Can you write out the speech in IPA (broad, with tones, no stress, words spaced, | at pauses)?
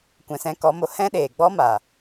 kʷɛ̃˨sɛ̃˧kɔ˨˦mo˨ hɛ̃˦ɗeː˨ɡ͡bɔ˦ma˨